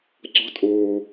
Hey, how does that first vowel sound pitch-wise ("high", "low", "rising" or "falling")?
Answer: rising